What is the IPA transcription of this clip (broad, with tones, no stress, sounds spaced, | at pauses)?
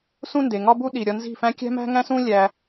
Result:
s ũ˦ n d e˨ ŋ ɒ˦ b u˦ ɗ i˨ ɾʲ ɒ˧ n z i̤˦˨ f æ̃˦ kʲ æ̤˦ m æ̤˦ ŋ æ̃˦ s ũ˦ lʲ æ˧